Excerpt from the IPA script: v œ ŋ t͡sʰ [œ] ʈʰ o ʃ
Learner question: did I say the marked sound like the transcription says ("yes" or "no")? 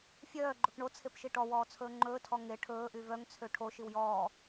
no